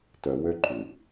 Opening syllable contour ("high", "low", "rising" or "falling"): low